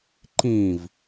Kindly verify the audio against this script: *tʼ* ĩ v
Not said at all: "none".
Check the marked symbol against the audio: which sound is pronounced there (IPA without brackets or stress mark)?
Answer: ǃ